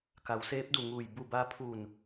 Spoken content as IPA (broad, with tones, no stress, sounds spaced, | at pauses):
k a˩˧ w s eː˧˥ p̚ d u˧˩ ŋ uː˧˩ j b u˧˩ b a˧ pʰ uː˧˩ n